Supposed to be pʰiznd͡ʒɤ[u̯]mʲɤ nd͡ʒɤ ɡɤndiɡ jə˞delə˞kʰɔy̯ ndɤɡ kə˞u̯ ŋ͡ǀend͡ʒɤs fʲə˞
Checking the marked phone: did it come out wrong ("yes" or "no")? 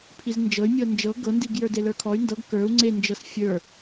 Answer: yes